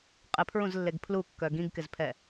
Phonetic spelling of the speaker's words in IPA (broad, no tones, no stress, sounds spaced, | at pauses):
qʼ ɪ pʰ ɹ ũ z lː e ɡ pʰ l u kː œ ɡ ĩ ɡ k ɪ z pʰ ɛ